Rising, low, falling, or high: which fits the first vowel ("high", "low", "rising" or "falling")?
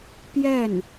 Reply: falling